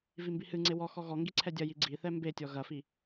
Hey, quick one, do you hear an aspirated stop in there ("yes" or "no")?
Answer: yes